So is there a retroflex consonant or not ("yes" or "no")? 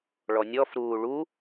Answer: yes